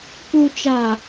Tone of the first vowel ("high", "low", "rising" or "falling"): low